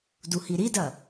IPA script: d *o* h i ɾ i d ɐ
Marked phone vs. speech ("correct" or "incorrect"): incorrect